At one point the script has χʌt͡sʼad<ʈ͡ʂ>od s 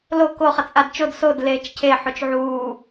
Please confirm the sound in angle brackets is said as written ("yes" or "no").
no